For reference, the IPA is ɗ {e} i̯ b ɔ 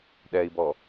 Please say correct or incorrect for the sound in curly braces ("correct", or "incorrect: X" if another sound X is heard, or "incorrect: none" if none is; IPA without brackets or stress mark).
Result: incorrect: ɛ